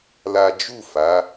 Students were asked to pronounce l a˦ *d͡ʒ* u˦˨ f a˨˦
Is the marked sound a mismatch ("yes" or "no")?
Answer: no